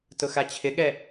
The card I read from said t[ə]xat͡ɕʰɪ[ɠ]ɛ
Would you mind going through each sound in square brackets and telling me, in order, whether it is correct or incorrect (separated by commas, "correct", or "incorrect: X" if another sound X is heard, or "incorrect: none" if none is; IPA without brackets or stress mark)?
incorrect: ʊ, correct